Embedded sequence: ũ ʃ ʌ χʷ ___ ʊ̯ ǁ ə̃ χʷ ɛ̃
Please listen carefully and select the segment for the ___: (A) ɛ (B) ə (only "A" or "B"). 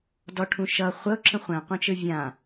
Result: B